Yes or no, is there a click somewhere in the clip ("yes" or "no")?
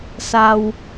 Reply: no